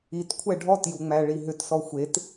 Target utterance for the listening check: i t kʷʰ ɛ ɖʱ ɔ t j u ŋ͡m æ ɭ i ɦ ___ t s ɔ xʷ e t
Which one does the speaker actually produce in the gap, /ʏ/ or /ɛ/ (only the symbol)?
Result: ʏ